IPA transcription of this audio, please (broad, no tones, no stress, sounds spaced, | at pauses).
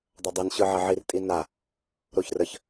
dˤ ɐ dˤ i n ɕ ɯ ʕ ɐ ʕ i r tʼ i n a | ɾ o ç r ə ç